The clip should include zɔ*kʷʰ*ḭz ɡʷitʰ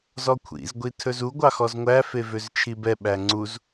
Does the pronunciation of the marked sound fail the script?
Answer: no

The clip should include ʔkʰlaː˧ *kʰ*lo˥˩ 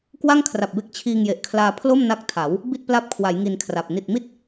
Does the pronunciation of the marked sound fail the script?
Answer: yes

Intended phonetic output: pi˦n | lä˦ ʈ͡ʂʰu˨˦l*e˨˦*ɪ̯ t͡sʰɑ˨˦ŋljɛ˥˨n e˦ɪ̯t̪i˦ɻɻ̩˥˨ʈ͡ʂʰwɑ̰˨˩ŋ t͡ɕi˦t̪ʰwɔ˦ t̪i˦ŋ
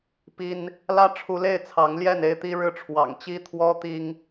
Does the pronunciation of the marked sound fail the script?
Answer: yes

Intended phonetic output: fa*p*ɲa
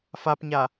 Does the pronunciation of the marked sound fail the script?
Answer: no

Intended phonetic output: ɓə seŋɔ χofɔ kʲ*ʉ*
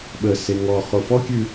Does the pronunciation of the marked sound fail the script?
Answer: no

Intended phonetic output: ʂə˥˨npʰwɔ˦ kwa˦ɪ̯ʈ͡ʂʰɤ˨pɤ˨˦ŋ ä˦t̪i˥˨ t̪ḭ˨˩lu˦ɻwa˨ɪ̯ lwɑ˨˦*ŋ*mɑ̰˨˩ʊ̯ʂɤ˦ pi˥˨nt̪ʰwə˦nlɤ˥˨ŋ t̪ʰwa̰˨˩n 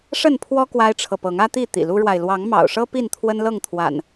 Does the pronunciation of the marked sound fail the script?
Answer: no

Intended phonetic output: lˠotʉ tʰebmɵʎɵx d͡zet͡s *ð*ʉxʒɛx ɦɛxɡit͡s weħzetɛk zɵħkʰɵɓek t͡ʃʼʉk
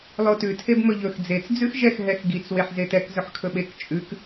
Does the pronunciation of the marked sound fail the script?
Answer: yes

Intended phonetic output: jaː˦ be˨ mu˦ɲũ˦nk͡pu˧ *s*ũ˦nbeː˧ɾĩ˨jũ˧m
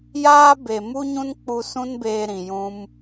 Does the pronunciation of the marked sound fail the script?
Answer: no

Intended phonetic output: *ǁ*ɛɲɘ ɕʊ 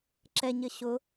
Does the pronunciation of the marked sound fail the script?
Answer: no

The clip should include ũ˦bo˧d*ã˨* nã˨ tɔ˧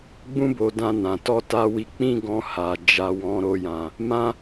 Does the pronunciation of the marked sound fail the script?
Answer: yes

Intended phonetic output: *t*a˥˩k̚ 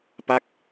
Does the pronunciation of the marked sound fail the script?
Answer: yes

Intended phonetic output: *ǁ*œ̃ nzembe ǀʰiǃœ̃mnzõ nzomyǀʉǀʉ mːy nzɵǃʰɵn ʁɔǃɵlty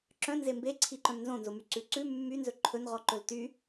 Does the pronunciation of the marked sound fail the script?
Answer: no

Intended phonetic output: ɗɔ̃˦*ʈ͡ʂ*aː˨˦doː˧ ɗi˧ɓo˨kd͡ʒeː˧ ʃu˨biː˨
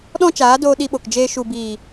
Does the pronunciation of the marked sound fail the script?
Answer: yes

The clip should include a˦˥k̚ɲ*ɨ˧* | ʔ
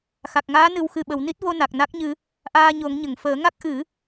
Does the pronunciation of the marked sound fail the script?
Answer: no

